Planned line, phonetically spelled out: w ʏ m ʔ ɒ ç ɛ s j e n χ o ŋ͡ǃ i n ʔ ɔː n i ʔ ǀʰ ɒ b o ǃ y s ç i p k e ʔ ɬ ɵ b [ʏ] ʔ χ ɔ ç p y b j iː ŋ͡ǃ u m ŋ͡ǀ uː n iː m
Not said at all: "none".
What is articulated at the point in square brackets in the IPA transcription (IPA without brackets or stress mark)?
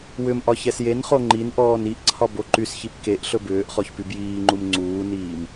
ʏː